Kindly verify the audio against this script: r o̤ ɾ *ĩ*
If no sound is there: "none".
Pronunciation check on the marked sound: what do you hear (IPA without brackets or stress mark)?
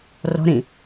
ĩ